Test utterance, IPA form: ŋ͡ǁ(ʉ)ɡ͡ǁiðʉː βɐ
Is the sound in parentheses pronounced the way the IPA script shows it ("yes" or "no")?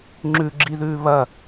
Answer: yes